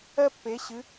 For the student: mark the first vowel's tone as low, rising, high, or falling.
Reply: high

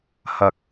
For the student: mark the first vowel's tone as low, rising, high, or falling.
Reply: low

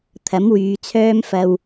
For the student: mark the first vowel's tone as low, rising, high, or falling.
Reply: rising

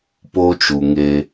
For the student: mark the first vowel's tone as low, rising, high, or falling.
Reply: high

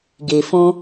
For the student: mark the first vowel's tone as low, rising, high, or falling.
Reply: low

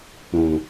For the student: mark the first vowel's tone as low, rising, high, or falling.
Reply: low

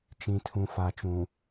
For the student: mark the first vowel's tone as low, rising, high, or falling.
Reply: low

